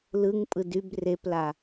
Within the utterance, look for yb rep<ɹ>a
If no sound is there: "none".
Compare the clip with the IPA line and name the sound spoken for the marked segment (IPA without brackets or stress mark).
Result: l